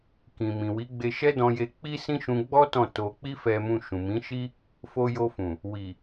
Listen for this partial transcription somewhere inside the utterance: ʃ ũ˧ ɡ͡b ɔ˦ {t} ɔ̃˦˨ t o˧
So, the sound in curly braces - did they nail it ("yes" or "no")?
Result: yes